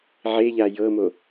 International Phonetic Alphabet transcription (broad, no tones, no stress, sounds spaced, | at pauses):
ʕ e ʎ a j ɤ m o